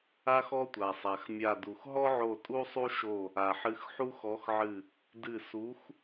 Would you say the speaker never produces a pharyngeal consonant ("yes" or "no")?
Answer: no